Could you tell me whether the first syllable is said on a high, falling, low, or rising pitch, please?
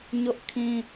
high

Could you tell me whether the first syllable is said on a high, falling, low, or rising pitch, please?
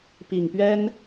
low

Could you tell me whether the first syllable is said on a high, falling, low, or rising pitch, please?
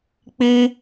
high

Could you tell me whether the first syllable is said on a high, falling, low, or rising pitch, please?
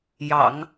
low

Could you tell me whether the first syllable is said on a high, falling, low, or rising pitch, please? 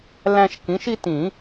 high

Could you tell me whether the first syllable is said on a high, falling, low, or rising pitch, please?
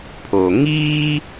low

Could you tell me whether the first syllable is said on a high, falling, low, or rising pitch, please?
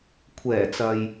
low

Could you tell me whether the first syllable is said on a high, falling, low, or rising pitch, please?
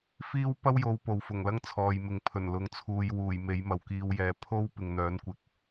high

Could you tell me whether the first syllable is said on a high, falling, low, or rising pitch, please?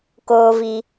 high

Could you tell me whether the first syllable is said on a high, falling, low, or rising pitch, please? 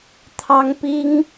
high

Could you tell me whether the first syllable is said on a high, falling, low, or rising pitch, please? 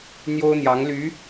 high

